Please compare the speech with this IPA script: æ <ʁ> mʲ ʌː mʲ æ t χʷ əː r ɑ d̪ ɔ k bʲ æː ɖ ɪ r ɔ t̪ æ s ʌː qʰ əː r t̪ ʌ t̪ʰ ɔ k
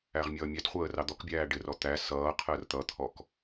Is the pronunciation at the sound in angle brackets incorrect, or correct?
correct